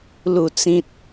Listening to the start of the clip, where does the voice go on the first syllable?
low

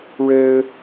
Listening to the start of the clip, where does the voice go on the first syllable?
high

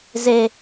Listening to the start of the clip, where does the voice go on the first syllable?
high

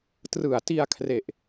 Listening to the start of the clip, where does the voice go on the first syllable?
low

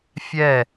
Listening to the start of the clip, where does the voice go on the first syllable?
falling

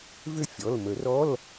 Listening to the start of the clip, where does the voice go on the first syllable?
falling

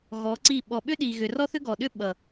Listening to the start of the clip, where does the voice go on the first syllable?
rising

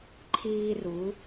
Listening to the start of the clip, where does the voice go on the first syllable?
high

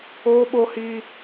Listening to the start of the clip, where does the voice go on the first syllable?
high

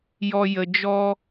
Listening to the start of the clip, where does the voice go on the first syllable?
low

